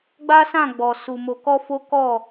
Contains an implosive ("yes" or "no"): no